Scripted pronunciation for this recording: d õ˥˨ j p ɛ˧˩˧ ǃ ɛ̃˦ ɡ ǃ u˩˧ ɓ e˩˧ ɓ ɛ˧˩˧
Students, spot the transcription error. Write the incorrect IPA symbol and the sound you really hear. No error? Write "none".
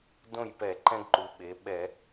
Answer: none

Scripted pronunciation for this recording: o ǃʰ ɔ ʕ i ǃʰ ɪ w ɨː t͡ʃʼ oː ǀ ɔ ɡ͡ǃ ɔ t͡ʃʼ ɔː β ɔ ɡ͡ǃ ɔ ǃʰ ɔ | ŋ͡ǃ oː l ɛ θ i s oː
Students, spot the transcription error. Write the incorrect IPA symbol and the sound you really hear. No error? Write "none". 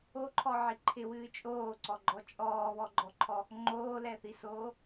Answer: none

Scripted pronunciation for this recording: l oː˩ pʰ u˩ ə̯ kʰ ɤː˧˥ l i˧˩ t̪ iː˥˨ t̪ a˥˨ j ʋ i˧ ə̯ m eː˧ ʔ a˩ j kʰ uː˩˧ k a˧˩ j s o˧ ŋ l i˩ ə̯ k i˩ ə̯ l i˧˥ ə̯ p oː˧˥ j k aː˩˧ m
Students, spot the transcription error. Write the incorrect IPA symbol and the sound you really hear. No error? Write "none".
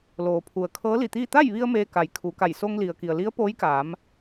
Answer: ʔ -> k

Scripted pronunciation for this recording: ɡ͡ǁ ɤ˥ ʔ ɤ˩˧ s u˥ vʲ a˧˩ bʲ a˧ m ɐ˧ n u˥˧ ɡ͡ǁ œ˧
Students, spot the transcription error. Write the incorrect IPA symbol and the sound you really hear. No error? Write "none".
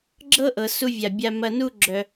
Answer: none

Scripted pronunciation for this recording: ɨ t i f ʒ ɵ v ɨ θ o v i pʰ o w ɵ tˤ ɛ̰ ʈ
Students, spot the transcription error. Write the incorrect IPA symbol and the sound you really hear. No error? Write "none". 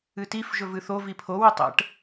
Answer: none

